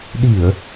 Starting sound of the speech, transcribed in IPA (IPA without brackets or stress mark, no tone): ɗ